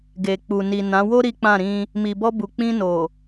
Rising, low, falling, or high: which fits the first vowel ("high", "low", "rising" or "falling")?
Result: low